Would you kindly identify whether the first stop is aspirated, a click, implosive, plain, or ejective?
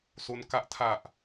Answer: plain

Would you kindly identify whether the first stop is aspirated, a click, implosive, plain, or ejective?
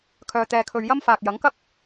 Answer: aspirated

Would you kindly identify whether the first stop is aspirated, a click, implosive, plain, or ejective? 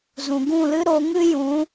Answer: plain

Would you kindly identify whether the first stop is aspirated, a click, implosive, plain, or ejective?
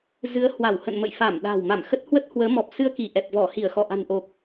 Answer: implosive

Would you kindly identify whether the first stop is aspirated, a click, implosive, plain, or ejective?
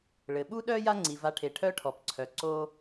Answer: implosive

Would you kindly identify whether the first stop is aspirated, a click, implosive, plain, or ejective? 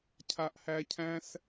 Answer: aspirated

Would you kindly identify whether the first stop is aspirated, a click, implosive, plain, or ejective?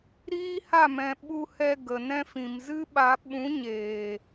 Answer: implosive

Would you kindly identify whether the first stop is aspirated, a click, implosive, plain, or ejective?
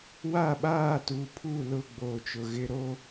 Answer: implosive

